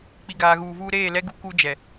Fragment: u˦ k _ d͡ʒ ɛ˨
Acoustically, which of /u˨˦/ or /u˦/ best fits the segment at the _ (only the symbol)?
u˦